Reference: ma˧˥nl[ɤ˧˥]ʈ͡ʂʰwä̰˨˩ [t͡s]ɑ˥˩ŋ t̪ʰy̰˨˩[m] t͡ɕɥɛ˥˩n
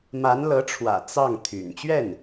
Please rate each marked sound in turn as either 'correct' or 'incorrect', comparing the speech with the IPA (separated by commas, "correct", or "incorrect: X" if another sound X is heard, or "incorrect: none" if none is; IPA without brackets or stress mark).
correct, correct, incorrect: n